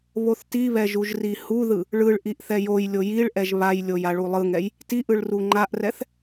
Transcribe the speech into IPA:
β o θ t i β ɛ ʒ u ʒ r i h u ð ɯ | ɭ ɯ ɭ ʔ i ʔ θ ɛ j o j lʲ o j i ɭ ʔ ɛ ʒ β a j lʲ o j a ɭ u lˠ ɯ ŋ ɛ j | t i ʔ ɯ ɭ r u ŋ͡ǃ a ʔ r ɛ θ

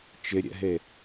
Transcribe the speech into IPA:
t͡ʃ ɪ ɾʲ ɛ̰ ɦ e

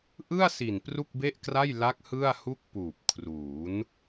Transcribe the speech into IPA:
ʔ ɯ˥˩ a̯ s i˨˩ n p r u˥˩ k̚ b e˥˩ ʔ k r a˥˩ j l a˦˥ k̚ h ɯ˥˩ a̯ h u˥˩ k̚ p uː˨˩ p̚ kʰ r uː˩˦ n

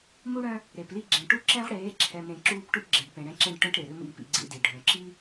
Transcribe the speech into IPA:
m u˦ ɽ œ̃˦ | ɾ e˨ p l i˦ ɡ͡ǁ ẽ˨ ʈ u˦ ǁ ɛ̃˦ ʁ ɽ eː˨˦ ǁʰ ɛ˨ m ɾ ẽ˨ ǁ uː˦ p ʈ u˦ ʈ ɡ͡ǁ e˨ ɖ p ẽ˨ ɽ ɛ̃˦ ǁ ẽ˦ ɖ ʈ œ̃˦ ʈ ɾ e˨ ɾ ʏ˦ m ḭ˦ p ḭ˦ ɡ͡ǀ ḭ˦ d i˨ ɖʱ œ̃˨ ǁ i˦

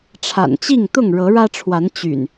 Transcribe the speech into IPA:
ʈ͡ʂʰ a̰˨˩ n t͡ɕ i˥˨ ŋ t̪ ʊ˥˨ ŋ ɻ ɤ˨˦ ɻ ä˦ ʈ͡ʂʰ w a˨˦ n t͡ɕ y̰˨˩ n

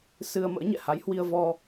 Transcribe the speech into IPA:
s ɨ˧ ə̯ m ə̰ː˧˥ ɲ ɛ̰˧˨ h a˨˦ j h w i˧ ə̯ v ɔ˧

